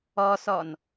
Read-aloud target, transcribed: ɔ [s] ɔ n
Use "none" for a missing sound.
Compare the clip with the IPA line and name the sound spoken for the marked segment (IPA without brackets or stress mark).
s